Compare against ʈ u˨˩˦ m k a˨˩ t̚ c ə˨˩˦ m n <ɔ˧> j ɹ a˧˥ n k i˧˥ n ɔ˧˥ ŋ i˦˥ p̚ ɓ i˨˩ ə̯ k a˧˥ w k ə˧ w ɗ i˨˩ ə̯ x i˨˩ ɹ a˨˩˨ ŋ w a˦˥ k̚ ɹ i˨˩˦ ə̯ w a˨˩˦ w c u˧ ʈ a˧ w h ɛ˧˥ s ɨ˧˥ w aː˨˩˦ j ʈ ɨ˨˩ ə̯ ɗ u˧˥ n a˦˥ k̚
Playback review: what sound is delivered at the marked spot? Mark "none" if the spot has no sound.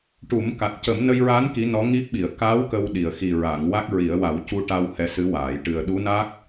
ə˧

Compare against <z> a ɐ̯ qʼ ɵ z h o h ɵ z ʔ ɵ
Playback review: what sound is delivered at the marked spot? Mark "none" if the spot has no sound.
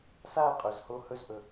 s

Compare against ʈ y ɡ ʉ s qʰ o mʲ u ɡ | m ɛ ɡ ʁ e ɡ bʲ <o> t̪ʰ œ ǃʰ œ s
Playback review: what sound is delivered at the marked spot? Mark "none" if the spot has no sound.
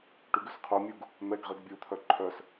u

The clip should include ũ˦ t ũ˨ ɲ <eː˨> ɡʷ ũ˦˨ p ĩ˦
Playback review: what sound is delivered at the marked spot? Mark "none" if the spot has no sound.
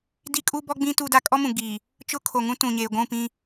eː˨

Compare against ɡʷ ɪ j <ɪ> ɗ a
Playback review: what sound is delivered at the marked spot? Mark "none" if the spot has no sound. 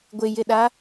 ɪ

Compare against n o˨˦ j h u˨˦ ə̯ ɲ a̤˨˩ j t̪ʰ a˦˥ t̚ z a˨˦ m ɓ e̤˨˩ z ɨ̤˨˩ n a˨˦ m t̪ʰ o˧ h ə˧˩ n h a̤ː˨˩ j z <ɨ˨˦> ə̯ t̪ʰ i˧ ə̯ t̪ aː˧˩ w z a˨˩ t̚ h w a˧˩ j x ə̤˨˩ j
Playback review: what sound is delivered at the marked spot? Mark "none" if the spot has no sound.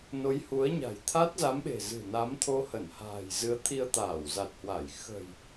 ɨ˨˦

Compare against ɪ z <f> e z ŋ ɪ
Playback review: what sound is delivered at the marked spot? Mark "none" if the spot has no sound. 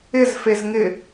f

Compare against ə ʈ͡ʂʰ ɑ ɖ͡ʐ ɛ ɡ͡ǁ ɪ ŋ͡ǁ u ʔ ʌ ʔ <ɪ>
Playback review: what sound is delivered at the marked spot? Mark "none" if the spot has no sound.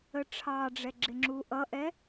ɛ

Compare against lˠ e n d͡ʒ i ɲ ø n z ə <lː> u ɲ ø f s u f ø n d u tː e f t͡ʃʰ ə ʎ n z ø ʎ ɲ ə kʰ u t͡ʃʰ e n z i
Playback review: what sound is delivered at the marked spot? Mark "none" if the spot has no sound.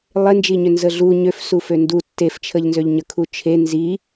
ɮ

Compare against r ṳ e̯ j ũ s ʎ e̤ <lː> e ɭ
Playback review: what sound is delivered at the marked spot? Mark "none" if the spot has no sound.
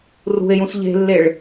lː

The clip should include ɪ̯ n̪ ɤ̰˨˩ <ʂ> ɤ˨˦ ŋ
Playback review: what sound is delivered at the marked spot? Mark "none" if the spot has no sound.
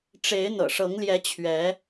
ʂ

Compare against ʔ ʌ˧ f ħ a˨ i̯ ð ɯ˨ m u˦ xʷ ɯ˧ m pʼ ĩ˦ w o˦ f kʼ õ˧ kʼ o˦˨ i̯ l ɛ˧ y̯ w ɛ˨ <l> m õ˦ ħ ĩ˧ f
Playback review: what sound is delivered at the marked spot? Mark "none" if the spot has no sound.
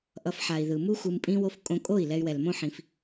l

